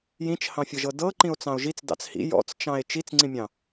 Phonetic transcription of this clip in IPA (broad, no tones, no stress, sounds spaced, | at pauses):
j ĩ t͡ʃ h ɑ̃ fʲ ɤ ʒ ɤ d ɤ ǃ ĩ o̯ t͡s ɑ̃ o̯ ʒ i t͡s d ɑ̰ t͡s h ḭ j ɔ̰ t͡s t͡ʃ ɑ̃ e̯ t͡ʃ i t͡s ŋ͡ǀ ĩ mʲ ɑ̃